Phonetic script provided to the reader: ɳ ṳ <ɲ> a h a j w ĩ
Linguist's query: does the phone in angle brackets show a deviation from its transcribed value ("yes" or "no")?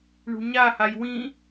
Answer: no